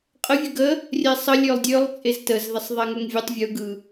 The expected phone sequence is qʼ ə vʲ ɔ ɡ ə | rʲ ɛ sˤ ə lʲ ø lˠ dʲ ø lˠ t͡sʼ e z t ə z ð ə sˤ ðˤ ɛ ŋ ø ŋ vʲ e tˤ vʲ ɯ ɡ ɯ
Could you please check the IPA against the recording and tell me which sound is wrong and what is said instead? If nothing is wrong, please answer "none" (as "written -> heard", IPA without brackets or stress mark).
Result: ɔ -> ə